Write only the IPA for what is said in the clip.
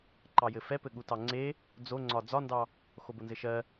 ǃɑjɘfɛpɘ ɠutɑŋ͡ǀe | d͡zoŋ͡ǀɒ d͡zɒndɑ | xobonzɘʃɜ

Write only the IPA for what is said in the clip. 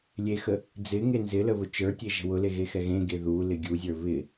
lʲexə | d͡zɪŋe nzɪlə βʊt͡ʃə˞tʲe ʒə̤wʊle ɣexɛɣẽɡe ðulɪ ɡʲuzʲə˞ βɪ

